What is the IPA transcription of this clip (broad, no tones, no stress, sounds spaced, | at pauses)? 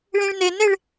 ɭ ĩ ɭ n e n e ɭ